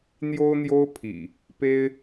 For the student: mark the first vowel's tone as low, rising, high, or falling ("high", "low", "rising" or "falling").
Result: high